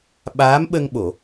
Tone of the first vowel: rising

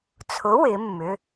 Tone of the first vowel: rising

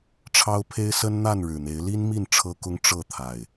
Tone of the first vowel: high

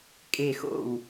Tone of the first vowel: falling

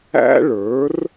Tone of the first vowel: high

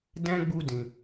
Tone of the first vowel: high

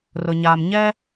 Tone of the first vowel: low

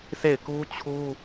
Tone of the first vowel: falling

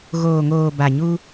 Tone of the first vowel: low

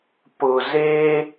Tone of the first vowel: low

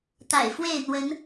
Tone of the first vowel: low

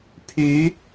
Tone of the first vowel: rising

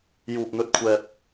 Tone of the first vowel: high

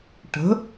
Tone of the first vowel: rising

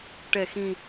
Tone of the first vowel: low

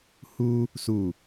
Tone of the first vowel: high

